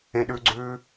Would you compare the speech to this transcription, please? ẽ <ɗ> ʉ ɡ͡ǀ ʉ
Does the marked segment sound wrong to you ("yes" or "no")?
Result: no